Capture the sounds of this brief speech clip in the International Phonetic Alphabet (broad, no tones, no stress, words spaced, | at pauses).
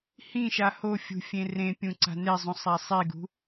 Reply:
hĩʃa hofʲṳ fʲẽrẽ pʲũǀa̤nezˤũ sˤasˤiɡṳ